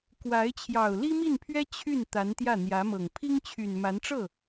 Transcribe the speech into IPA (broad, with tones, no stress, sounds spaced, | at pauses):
k w a˧˥ ɪ̯ t͡ɕʰ j ɑ˨˩ ʊ̯ l i˥ m i˥˩ n pʰ ɥ ɛ˥ t͡ɕʰ y˥˩ n t̪ a˧˥ n t̪ j ä˥˩ n̪ j ä˧˥ m ɤ˨˩ ŋ pʰ i˥ ŋ t͡ɕʰ y˨˩ n m a˧˥ n ʈ͡ʂ ɤ˥˩